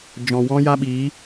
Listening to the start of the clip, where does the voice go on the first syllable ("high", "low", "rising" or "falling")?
low